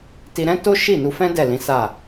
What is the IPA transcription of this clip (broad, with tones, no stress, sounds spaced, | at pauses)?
t i˧ ɾ ɛ̃˦ t o˦ ʃ i˦˨ n u˧ f ɛ̃˦ d ɛ˦˨ l ĩ˨˦ s a˦˨